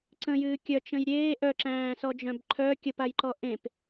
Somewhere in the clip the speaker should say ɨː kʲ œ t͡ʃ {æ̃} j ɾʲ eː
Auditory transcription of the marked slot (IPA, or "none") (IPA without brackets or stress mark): ə̃